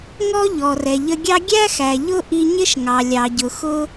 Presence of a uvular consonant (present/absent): absent